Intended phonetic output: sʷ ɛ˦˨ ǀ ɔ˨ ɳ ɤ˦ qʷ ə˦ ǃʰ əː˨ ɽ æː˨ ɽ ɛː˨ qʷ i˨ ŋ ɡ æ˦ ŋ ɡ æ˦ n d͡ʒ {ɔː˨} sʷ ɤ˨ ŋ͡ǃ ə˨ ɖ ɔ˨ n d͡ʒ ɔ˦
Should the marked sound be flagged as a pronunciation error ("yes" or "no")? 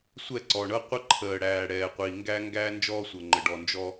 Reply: yes